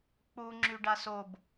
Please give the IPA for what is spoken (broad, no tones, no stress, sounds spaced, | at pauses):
k͡p u ŋ͡ǁ y ɖ a s o b